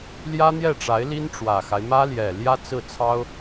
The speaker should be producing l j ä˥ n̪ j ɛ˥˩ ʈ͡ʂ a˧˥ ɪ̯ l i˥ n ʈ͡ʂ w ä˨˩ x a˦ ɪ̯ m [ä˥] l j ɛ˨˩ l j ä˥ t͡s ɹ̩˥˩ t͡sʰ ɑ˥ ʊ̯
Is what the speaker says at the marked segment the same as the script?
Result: yes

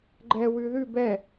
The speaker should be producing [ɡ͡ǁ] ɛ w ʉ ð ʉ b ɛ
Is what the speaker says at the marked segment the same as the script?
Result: no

